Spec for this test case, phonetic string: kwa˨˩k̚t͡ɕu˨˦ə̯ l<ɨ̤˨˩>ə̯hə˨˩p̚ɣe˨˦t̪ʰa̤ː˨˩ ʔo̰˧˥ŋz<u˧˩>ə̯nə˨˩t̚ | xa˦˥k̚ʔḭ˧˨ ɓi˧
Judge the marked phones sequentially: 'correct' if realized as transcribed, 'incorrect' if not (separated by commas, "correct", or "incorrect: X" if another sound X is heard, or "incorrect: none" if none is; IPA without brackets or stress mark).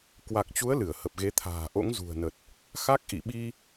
incorrect: ɨ˧˩, incorrect: ṳ˨˩